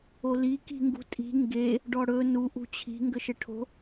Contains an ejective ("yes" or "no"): yes